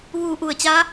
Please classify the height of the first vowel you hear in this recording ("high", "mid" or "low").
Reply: high